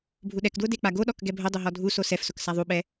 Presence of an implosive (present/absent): present